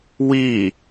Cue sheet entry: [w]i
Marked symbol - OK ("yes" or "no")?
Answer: yes